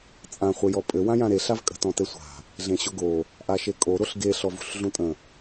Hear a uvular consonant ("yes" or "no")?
yes